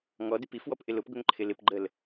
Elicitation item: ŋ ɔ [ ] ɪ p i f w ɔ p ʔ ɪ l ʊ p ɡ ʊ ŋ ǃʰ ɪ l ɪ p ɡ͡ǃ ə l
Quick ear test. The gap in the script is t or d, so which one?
d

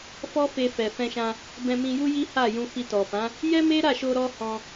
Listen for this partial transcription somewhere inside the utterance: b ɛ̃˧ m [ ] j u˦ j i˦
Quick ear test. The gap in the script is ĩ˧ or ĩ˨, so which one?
ĩ˧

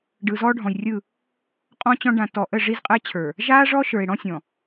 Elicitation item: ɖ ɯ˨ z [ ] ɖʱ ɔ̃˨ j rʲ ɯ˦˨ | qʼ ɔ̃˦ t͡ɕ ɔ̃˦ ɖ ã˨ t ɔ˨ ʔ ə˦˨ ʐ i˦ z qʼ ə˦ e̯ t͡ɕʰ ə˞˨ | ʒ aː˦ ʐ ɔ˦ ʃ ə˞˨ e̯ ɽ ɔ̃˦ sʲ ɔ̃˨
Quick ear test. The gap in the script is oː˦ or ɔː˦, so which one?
ɔː˦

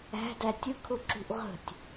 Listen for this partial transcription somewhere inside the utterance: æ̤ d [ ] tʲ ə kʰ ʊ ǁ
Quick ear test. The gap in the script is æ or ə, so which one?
æ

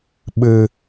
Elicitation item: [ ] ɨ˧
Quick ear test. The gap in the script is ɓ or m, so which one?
ɓ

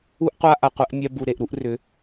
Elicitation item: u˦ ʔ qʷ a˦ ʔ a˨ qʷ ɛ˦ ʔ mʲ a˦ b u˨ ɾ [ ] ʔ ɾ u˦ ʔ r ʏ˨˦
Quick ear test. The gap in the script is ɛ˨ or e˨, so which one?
e˨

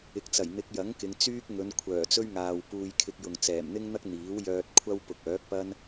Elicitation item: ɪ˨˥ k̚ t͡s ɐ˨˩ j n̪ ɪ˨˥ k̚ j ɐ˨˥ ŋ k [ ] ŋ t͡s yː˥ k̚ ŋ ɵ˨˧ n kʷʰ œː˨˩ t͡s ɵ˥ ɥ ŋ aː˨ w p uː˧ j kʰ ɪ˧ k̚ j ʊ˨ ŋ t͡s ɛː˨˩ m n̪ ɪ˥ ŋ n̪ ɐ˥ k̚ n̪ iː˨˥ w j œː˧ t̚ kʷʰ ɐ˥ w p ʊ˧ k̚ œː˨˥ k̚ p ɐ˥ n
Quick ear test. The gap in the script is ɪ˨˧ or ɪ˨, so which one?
ɪ˨˧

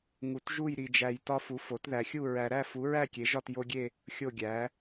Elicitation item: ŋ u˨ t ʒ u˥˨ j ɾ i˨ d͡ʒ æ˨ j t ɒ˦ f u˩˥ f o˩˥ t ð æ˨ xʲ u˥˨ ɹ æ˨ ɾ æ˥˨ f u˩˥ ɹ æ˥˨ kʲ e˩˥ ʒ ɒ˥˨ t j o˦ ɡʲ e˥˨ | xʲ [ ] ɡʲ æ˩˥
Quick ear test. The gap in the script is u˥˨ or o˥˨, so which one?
o˥˨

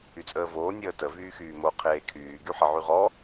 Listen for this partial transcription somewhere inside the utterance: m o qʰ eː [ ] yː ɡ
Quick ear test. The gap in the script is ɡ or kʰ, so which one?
kʰ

